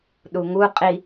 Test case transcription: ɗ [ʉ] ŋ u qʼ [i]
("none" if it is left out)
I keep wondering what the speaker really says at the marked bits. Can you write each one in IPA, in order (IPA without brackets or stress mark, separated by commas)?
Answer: u, i